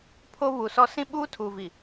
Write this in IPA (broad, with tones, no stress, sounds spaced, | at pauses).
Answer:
pʰ o˦ β u˨ s ɔ˦ s ĩ˦ ɓ uː˦ tʰ uː˨ v i˨